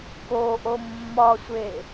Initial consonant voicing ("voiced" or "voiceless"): voiceless